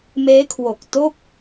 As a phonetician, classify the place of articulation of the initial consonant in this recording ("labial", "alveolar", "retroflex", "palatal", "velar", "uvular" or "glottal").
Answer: labial